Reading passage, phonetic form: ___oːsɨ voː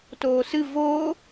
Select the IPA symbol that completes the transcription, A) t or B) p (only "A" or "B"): A